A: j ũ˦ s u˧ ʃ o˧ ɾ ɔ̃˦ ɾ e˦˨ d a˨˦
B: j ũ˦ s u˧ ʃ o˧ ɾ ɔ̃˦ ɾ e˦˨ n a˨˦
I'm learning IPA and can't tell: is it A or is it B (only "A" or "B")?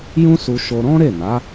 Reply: B